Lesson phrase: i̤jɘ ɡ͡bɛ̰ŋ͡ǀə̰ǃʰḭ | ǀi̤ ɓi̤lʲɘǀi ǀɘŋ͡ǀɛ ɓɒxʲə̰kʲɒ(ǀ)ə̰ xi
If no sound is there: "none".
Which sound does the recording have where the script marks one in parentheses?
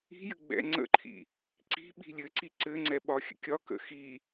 k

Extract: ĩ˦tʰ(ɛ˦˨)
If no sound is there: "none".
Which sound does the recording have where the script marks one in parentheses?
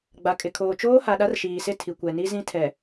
ɛ˨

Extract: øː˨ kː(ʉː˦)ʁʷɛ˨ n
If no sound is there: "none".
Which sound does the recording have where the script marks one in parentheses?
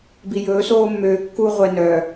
uː˦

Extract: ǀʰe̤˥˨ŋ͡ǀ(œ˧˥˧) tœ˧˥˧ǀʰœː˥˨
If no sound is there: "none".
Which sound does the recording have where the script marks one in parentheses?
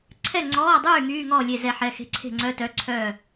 œ˧˥˧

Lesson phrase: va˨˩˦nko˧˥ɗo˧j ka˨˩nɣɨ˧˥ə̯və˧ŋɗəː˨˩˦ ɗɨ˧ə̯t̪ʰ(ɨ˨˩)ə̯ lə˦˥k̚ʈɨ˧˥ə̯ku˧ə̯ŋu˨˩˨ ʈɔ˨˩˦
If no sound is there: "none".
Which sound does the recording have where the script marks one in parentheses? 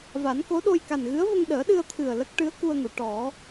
ɨ˨˩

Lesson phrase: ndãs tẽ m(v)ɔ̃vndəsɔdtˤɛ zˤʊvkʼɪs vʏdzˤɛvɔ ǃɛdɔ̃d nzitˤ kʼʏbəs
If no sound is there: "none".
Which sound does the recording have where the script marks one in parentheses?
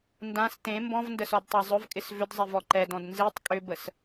b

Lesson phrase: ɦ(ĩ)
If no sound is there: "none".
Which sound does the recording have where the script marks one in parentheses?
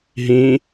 ĩ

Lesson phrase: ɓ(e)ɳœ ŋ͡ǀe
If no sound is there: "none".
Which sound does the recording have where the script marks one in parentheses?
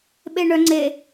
e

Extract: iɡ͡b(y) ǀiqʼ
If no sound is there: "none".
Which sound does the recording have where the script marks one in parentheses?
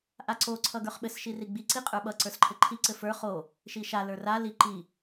i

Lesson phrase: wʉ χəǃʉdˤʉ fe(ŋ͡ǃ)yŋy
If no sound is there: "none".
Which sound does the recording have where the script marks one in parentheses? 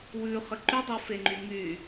ŋ͡ǃ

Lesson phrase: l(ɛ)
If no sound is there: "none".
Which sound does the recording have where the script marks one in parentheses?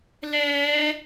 ɛː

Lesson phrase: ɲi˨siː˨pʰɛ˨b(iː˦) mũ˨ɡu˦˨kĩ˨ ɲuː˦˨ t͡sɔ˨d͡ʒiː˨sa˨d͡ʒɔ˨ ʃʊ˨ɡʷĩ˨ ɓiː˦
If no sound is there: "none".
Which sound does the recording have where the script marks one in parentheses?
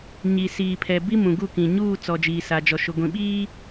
i˦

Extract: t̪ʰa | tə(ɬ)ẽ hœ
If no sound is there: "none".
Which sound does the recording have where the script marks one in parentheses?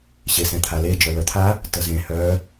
z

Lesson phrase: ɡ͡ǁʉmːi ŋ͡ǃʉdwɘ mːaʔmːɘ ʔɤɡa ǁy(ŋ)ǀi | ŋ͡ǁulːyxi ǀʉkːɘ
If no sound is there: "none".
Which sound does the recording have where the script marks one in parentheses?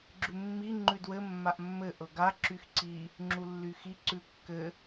x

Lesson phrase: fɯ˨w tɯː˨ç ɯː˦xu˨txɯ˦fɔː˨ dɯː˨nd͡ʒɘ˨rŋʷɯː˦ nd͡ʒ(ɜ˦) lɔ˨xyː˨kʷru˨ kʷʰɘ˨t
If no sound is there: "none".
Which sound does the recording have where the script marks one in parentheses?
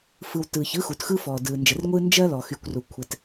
ɜ˦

